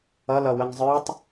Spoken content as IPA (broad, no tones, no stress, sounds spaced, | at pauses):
ʌ l ʌ w ə ŋ zˤ ə˞ tˤ